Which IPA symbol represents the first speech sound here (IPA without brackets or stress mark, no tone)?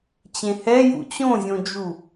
t͡ɕ